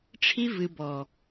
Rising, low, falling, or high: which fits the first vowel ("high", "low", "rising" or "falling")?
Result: high